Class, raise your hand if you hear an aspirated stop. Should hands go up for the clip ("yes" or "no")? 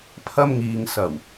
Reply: yes